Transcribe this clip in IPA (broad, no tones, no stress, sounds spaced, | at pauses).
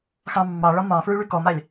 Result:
x ɑ̃ mː ɑ ɭ ɒ m ɑ̃ f ɹ y ɭ y k ɔ m a lʲ